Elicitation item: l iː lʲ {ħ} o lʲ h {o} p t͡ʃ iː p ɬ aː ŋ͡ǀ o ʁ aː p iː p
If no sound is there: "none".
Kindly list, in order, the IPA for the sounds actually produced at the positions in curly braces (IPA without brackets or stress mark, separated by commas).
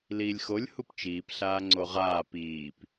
x, u